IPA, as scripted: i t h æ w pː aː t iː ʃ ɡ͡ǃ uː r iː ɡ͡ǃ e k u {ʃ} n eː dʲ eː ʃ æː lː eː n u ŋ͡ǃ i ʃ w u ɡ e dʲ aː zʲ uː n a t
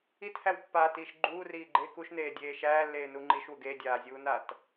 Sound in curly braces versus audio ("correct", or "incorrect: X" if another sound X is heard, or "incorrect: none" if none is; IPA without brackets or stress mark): correct